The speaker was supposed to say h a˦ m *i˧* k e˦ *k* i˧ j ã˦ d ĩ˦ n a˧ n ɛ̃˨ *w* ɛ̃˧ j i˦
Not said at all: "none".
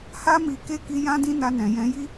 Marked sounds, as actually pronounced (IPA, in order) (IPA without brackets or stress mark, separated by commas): i˧, k, j